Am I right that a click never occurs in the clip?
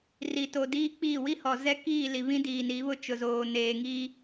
yes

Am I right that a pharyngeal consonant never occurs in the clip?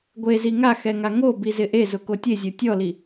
yes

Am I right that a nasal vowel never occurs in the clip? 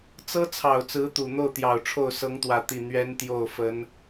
yes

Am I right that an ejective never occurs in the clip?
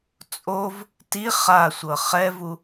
no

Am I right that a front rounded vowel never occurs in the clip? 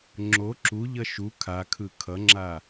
yes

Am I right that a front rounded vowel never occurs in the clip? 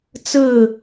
yes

